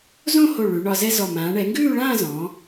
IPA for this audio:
z õ˥˧ h o˧˩ ɭ ʉ˩˧ ɳ ɒ˧ z ɛ˥ z ɔ˧˩ m ãː˩˧ ɳ ɛ˩˧ ŋ ɡ ʉː˥˧ ɭ ãː˥˧ z ɔ̃˩˧

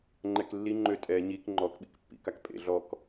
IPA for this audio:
ŋ͡ǃ ɛ k lː i ŋ͡ǃ ø tʼ ɛ ɲ i k ŋ͡ǃ ɔ k ɓ ḭ k pː ḭ k a k pʼ ḛ ɮ ɔ k

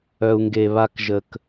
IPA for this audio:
œ˨ u̯ ŋ ɡ e˨ β a˧ k ʒ ə˨ k

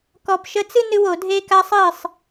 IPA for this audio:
k ɔ˨ p ʃ ə˧ t͡s ɨ˦ n ɨ˧ w o˨ dʱ e˦ k a˦ sˤ ɨ˦˨ sˤ

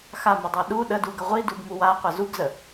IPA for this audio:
x a m ɔ dˤ ɑ ɗ u ɗ ə d u ɡ ə ʁʷ i d u b m u w a qʷ ə z u ɡ z ə

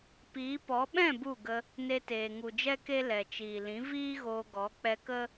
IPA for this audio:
p iː˨˦ p ɔ˨˦ ɓ ɛ̃˦˨ b u˦˨ ɡ ə˧ | n e˧ t eː˨ ŋ u˨ d͡ʒ ɛ˦ k e˦ l ɛ˨ t͡ʃ iː˨ l ĩ˨˦ v iː˦ ɣ oː˧ ɡ ɔ˨˦ k͡p ɛ˧ k ə˦

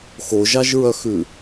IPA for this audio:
x o ʒ ɑ ʒ ɹ œ x ʉ

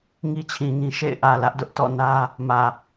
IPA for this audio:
ŋ i˦ t͡ɕʰ ĩ˨ ŋ ĩ˦ ʃ ḛ˦˨ ɪ̯ ʔ ä˨ l ä˦ ʔ d ʊ˦ ʔ t ɔ̰˦˨ n ä˦ | m ä˨

